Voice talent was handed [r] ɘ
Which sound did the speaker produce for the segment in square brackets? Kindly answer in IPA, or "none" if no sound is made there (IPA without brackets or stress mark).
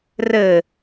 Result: r